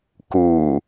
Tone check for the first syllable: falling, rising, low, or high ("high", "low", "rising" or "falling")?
low